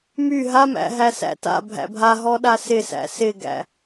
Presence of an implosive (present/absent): present